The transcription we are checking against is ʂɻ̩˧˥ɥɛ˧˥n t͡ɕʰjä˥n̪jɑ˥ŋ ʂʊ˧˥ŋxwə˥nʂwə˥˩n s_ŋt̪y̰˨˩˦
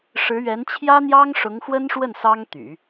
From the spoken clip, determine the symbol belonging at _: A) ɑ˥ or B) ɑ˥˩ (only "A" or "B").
A